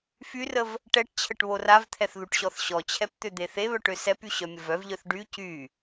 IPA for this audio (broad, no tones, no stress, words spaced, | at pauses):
fyrəv | ʈɛʈ t͡ɕʰəʈβoravt̪ʰɛθ ðuʈɕɔθɕɔt͡ɕʰɛp t̪ød̪eθeβœʈ øsɛpy ɕœmʲəvœvʎœθ ɖy cy